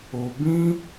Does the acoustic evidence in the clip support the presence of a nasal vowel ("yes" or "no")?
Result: yes